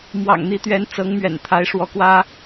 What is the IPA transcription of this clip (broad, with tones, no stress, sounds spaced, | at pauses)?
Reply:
m w ɑ̰˨˩ ŋ n̪ i˧˥ t̪ ɥ ɛ˧˥ n t͡s ɤ˧˥ ŋ m ɥ ɛ̰˨˩ n t̪ʰ a˧˥ ɪ̯ ʂ w ɔ˧˥ k w ä˥